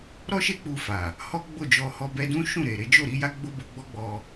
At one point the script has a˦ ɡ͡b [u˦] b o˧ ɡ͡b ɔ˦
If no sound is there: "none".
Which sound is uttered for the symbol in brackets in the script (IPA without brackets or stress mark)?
o˦